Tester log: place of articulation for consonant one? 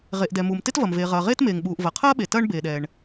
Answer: uvular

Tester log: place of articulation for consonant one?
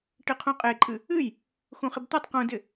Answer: retroflex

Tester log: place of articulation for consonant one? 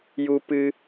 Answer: palatal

